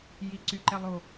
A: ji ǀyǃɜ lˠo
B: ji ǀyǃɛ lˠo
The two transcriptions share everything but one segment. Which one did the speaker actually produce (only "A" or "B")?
B